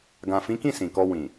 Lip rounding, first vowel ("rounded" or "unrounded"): unrounded